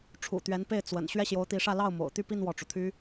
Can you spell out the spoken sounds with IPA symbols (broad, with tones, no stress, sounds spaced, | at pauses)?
ʈ͡ʂʰ ṵ˨˩ t̪ ɥ ɛ˧˥ n p e˥˩ ɪ̯ t͡s w ə̰˨˩ n ɕ ɥ ɛ˥˩ ɕ j o˧˥ ʊ̯ t̪ i˧˥ ʂ ä˥˧ l ɑ˥˩ ʊ̯ m o̰˨˩ ʊ̯ t̪ y˥˧ p i˥˧ n w ɔ˥˩ ʈ͡ʂ u˩ t̪ʰ y˥